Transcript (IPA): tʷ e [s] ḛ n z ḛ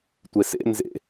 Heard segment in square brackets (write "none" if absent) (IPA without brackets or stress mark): s